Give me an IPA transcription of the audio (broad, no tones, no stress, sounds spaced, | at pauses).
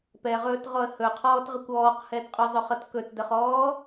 p ɛ ʁ ɵː t ʁ ɔ ə̯ h ɵ qʰ ɔː t ʁ ə kʷ ɔː q h ɛ d qʼ ʏ zˤ ʏ χ ʌ t k ɵ t d ə χ ɔː